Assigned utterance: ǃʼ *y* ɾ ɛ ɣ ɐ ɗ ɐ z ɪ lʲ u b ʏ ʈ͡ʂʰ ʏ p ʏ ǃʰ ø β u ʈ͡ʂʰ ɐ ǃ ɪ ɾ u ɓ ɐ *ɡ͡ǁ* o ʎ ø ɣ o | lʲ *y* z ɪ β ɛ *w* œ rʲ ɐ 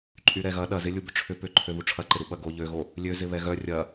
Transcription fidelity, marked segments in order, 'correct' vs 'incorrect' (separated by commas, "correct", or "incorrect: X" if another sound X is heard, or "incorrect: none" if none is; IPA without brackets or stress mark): correct, incorrect: ɡ, incorrect: ø, incorrect: ɣ